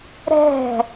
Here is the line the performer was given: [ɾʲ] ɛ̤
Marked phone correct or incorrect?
incorrect